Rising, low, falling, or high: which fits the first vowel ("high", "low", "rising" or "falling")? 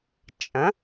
rising